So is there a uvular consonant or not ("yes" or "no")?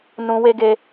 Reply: no